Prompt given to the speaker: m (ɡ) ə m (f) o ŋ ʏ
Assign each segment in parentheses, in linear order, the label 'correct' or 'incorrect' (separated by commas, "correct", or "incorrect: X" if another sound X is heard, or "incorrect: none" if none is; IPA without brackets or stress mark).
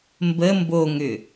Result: incorrect: b, incorrect: b